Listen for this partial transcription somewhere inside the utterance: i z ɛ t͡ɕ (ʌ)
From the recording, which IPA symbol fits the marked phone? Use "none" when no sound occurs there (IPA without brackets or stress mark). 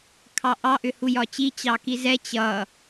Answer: ʌ